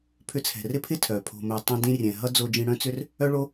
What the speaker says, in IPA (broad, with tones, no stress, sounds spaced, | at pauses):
pʰ ʏ˧ t͡sʰ ɛ̤˨ r ɪ˦ pʰ ɪ˦ tʰ œː˨ pʰ o̤˨ m œ˨ tˤ ɛ̃˧ d ĩ˧ rʲ ɛ̃˨ ɦ ʌ˦ d͡z o˦ d͡ʒ ĩ˦ ɽ œ̃˦ t͡s ʏ˦ r | œ˦ ɭ o˦